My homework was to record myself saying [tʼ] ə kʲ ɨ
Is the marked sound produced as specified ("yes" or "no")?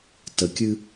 no